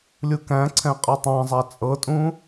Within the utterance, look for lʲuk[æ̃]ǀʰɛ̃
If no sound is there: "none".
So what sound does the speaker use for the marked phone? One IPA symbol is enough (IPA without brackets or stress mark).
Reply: æ̃